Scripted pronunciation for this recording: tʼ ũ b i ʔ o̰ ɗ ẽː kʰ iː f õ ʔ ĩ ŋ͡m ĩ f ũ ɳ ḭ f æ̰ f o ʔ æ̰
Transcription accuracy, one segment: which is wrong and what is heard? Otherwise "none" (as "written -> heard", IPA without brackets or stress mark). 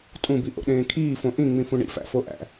none